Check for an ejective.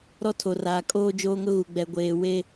present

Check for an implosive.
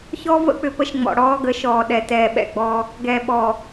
present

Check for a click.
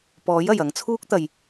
absent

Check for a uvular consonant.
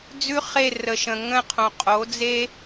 present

